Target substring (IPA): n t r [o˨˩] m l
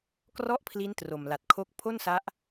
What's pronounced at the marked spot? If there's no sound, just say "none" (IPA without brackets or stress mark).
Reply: o˨˩